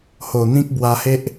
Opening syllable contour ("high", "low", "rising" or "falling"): low